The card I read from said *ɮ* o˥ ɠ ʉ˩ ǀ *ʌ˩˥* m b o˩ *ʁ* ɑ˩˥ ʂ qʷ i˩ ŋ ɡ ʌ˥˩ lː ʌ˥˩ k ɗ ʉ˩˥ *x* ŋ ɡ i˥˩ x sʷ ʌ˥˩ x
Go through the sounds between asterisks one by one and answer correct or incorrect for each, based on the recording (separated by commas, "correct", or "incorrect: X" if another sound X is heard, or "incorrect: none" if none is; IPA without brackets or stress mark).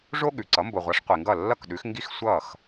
incorrect: ʐ, correct, incorrect: ʁʷ, correct